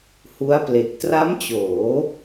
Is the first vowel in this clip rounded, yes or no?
yes